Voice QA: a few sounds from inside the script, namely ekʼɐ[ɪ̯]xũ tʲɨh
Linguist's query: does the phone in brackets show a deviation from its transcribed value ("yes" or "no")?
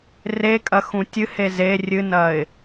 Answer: yes